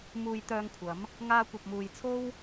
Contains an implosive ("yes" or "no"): no